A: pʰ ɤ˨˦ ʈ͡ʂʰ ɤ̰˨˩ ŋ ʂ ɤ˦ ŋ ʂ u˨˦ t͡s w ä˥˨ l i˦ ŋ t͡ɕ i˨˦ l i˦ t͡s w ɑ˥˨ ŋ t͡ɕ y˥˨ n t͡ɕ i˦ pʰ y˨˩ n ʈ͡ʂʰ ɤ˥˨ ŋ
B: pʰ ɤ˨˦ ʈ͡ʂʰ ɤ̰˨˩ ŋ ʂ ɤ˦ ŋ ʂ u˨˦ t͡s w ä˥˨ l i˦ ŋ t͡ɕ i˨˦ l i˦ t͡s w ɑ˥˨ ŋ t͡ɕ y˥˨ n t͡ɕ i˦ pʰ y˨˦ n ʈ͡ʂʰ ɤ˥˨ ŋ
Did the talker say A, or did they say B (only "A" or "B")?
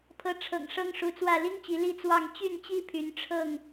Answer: B